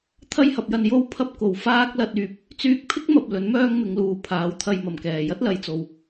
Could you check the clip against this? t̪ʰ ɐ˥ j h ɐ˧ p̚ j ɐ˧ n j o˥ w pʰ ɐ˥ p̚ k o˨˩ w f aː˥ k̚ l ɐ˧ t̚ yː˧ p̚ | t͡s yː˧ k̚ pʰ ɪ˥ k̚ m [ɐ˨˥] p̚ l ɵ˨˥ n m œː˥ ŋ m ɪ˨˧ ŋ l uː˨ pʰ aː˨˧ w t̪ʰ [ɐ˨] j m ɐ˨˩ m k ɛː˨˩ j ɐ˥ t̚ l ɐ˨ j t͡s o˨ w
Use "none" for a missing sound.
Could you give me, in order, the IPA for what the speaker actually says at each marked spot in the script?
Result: ɐ˨, ɐ˧

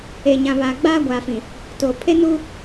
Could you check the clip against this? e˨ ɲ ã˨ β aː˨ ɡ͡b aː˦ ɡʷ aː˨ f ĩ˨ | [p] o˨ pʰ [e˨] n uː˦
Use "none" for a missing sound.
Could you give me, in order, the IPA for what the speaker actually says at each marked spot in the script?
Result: t, e˦

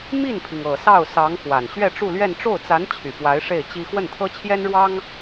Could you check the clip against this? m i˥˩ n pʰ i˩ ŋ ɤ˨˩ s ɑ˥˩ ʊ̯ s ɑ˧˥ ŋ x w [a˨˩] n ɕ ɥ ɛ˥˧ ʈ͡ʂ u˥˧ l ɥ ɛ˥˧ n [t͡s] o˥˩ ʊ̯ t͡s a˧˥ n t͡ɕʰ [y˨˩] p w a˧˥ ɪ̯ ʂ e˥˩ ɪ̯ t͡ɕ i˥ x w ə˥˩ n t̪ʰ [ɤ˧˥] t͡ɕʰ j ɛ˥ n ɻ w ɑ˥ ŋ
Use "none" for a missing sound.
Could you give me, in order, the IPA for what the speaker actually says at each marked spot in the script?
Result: a˨˩, ʈ͡ʂ, y˨˩, ɤ˥

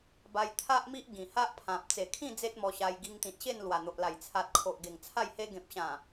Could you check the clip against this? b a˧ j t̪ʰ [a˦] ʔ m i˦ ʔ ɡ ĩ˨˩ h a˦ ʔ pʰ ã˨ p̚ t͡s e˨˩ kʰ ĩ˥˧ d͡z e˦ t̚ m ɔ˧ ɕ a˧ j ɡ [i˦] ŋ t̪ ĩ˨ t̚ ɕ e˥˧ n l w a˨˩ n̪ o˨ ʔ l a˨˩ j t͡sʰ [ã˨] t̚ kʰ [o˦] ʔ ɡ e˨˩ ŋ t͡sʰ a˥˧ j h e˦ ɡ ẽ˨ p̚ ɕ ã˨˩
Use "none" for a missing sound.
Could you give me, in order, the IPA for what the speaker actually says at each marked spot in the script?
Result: a˦, i˧, a˨, o˨

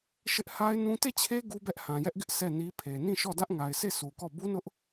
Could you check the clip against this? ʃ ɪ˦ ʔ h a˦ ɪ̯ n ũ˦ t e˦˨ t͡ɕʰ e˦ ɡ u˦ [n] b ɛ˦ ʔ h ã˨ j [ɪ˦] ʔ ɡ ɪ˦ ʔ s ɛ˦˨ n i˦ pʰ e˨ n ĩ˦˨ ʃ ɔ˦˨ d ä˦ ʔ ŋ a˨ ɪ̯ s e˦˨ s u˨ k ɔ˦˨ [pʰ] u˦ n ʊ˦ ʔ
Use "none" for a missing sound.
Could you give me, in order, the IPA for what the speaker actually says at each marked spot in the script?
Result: none, ɛ˦, b

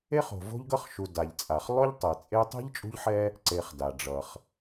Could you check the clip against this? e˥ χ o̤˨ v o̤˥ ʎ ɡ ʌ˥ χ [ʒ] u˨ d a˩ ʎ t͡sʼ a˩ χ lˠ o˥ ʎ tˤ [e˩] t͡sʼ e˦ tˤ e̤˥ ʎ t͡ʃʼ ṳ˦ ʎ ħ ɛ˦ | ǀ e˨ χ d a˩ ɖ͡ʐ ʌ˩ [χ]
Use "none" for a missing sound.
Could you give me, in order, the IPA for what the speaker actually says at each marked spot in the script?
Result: ʃ, ɛ˩, χ

